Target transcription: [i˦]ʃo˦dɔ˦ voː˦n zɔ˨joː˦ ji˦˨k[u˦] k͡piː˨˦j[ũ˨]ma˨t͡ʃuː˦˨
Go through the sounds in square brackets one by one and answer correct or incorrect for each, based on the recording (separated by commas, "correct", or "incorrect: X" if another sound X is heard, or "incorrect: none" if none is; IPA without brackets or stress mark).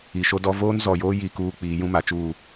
incorrect: i˨, incorrect: uː˦, incorrect: ũ˦